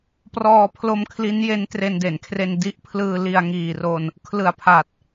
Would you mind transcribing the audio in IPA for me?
prɔː˧pʰlo˧m kʰli˦˥nje˦˥n tre˧nde˩˦nkʰre˧n di˦˥ʔpʰlɯː˧ li˧a̯ŋiː˨˩ro˧n | kʰlɯ˨˩a̯pʰa˨˩t̚

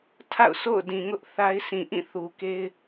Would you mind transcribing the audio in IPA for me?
tʰa̰˦˨ʊ̯ so̰˦˨ʊ̯dĩ˨ŋʊ˦ʔ θa˦ɪ̯sĩ˨ ʔĩ˦˨θu˨ke˦ɪ̯

